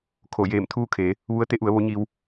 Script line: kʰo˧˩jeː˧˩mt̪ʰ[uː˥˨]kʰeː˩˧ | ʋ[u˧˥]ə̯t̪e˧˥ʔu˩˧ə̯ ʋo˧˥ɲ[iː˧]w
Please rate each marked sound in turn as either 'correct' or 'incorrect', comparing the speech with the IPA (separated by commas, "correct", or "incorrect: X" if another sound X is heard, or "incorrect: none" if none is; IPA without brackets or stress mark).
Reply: correct, correct, correct